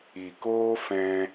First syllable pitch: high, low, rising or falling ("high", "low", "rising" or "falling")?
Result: low